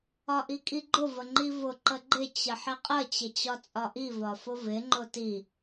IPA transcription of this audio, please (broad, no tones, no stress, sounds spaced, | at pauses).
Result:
ɒ ʔ i kʼ i ɡ͡ǃ ʊ v ə ŋ͡ǃ i v ʊ ǃ ə ɡ͡ǃ ɪ t͡ɕ ə ħ ɪ qʼ ə t͡ɕ ɪ t͡ɕ ɒ t͡sʼ ɒ ʔ i v ɒ f ʊ v ɪ ŋ͡ǃ ʊ t i